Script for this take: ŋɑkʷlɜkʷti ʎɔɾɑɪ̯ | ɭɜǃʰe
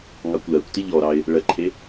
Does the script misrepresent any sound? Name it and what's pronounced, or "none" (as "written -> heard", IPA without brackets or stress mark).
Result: none